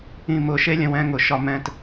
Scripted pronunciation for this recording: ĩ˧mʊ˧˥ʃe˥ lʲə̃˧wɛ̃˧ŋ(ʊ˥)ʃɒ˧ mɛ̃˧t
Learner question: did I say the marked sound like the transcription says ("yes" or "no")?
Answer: no